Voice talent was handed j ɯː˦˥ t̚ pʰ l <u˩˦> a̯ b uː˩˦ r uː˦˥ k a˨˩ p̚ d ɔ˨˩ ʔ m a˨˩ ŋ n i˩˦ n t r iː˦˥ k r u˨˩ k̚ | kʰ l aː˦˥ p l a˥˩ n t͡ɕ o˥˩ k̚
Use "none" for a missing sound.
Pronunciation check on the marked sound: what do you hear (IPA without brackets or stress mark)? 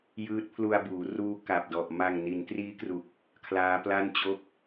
u˧